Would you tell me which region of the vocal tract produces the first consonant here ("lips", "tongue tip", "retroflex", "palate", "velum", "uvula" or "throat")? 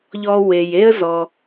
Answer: palate